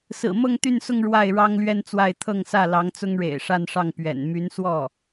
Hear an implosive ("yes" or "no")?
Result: no